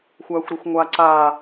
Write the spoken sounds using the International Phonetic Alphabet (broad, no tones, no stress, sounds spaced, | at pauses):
xʷ aː xʷ ɾ ɛ xʷ ŋʷ aː ǀ aː